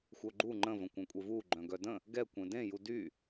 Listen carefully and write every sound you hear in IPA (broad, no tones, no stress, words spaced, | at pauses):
xʷœɡ͡ǃu ŋ͡ǃə̃ və̃kʷœ̃kʷʼevu ɡ͡ǃœ̃ɡœdə̃ | ɡɛ kʷẽdẽ judy